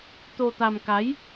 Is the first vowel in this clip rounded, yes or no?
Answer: yes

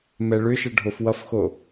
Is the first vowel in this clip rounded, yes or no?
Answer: no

